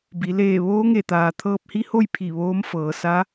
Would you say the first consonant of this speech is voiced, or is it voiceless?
voiced